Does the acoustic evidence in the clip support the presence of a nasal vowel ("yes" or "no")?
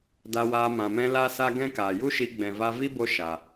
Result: yes